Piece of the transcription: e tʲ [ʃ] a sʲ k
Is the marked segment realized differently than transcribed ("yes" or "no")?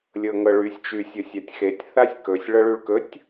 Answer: yes